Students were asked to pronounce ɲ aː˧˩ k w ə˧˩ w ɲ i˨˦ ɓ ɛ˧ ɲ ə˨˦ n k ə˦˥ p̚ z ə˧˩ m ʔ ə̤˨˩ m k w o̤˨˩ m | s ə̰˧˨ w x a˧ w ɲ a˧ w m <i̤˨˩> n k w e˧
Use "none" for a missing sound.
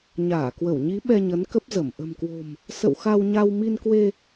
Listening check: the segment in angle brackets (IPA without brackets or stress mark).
i˧